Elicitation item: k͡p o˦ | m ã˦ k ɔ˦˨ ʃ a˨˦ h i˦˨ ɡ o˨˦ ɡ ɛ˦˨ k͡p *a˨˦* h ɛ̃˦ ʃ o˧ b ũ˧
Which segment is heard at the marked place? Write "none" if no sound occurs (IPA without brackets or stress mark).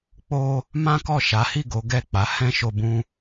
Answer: a˨˦